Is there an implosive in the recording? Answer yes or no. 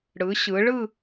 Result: no